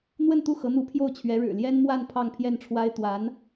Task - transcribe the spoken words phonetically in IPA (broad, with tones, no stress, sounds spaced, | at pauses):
n̪ w ə˥˧ n t̪ u˥˩ x ɤ˧˥ n̪ u˧˥ pʰ j o˥˩ ʊ̯ t͡ɕʰ ɥ ɛ˧˥ ɻ ɻ̩˨˩ l j ɛ˥ n m w a˥˧ n pʰ ɑ˥˧ ŋ pʰ j ɛ˥˩ n ʈ͡ʂʰ w a˥ ɪ̯ t̪ w a˧˥ n